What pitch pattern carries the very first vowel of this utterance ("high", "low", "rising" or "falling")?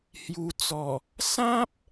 low